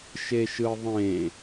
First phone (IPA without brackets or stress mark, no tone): ʃ